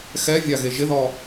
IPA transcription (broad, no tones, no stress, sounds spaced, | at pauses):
x ɛ vʲ a ɣ e ʒ ɪ ð ɔ